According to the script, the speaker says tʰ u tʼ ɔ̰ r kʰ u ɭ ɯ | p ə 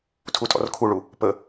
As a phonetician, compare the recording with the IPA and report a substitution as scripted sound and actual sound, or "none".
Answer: ɯ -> u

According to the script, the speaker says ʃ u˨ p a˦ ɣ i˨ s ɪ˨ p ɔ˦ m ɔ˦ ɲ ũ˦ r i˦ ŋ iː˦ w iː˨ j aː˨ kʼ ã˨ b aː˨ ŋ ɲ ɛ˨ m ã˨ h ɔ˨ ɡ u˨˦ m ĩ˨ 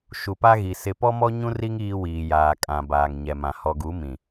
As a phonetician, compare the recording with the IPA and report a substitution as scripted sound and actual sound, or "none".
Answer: none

